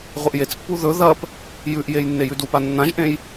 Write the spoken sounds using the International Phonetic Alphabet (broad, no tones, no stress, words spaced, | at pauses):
ʁʷɨʔjet͡spːu ðɵ ðɐp | jʉʔjej nːejʉdupa nːãʒʔẽj